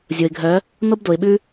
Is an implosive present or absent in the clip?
present